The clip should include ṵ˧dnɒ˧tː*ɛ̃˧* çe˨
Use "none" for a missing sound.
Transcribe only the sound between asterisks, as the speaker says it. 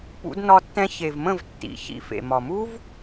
ɛ̃˧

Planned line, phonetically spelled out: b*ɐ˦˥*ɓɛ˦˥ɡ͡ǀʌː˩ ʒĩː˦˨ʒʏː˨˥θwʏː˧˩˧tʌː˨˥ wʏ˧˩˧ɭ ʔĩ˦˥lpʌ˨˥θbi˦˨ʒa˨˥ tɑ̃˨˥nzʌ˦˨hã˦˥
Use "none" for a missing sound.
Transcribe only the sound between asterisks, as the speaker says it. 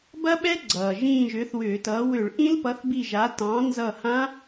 ɐ˦˥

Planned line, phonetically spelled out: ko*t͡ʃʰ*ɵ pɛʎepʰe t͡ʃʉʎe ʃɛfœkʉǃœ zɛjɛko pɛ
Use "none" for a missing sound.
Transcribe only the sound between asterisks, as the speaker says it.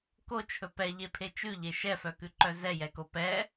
t͡ʃʰ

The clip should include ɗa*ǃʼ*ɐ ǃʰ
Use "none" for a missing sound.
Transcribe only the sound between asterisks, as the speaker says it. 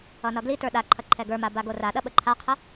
ǃʰ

